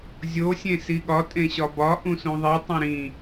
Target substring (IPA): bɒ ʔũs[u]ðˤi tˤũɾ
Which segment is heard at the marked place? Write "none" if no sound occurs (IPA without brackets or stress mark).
ũ